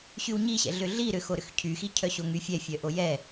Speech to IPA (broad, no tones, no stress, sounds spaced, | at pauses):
ɕ y w ɲ i ɕ ɛ̰ ɮ ʏ ɮ i ɾ ʏ x o ɾ ʏ x cʰ y x i cʰ œ ɕ o ŋ y fʲ ɛ fʲ œ ʔ o j ɛ